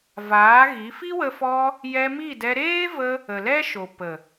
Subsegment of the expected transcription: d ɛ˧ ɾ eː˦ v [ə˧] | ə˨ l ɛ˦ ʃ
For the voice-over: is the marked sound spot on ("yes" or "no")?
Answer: yes